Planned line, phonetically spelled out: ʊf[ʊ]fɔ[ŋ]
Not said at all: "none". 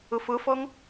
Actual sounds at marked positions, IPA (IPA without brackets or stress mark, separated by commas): ʊ, ŋ